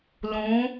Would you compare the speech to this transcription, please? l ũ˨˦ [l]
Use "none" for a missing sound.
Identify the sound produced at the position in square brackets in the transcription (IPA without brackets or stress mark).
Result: none